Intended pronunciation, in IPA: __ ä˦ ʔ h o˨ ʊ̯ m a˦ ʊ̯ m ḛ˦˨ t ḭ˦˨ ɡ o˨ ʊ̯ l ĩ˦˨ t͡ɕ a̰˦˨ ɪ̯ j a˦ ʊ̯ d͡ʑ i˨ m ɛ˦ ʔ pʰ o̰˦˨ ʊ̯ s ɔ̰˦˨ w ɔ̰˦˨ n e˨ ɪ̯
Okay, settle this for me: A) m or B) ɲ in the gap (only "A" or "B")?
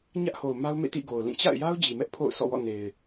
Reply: B